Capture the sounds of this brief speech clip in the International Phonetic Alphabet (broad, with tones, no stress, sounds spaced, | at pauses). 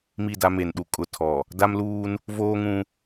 m i˦˨ d a˦ m e˨ n ɗ u˨ kʼ ʊ˨ tʰ ɔ˨ | d a˦ m l uː˦ n | v oː˦ ŋ ũ˦